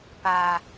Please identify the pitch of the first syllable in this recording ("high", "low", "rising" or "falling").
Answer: low